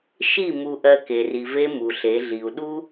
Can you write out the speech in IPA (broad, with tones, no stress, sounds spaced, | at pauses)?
ʃ i˦˨ m u˨ ʔ ɜ˨ k e˨ r i˨ v e˦ m u˨ ɬ e˨˦ ɮ i˨ u̯ ɗ u˦